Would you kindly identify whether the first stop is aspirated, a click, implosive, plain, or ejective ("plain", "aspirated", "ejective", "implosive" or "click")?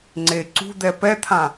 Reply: click